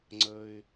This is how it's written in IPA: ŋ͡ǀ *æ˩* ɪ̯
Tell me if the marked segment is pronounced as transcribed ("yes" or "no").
no